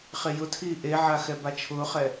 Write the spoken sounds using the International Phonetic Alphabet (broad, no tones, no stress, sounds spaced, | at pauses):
χ e j ʊ tʰ iː ʔ e ʕ a x ɛ b a t͡ʃʰ ʊː χ ɛ